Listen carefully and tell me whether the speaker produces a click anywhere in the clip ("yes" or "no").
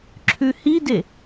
yes